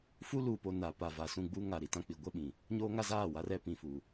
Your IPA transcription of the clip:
f u˦ l uː˨ p o˨ n a˨ p a˨ v a˨ s ũ˦˨ ɡ͡b u˦ ŋ a˨ ɾ i˨ t ã˦ k͡p i˨ ɡʷ ɛ˦ ɓ ĩ˨ | ɲ oː˦ ŋ a˦ z aː˦˨ w a˦ r ɛ˦ p ĩ˨ f u˨

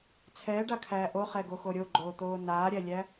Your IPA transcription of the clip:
t͡sʰ ɛː ɖ a kʰ æː ʔ o χ ɛ ɡ o x o ɾʲ o ɡ͡ǃ oː t̪ oː n aː ɾʲ æ lʲ æ

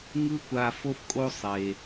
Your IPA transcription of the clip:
ŋ ɯ˥ kʷ a˦ f o˥ f kʼ o˦ sˤ e˦

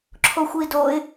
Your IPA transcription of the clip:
ǁʰ o xʷ i d o ɪ̯

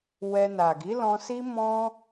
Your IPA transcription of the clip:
w ɛ˧ n a˨ ɡ i˨˦ l ɔ̃˧ s i˦ m ɔ̃˧

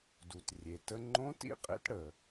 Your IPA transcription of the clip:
d u˩ t rʲ e˩ t ə˧ ŋ͡ǃ õ˧˥ t ḭ˥ qʼ ḛ˧˥ t ɽ ə˩

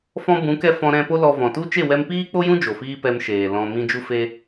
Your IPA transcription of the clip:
f ɔ̃˧ b ũ˨˦ k ɛ˧ f ɔ̃˧ ɾ ɛ̃˧ p o˦ l ɔ˧ v ɔ̃˨ t u˦ t͡ʃ e˦˨ w ɛ˧ m p iː˦ k͡p o˦ j ũ˦ d͡ʒ o˨ f iː˦ p ɛ˧ m ʃ eː˨ l ɔ̃˧ m ĩ˦ d͡ʒ u˦ f e˦

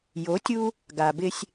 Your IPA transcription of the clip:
j o˨˦ tʲ u˦ | ɡ a˨ b ɪ˦ sʲ

